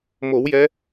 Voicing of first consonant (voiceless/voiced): voiced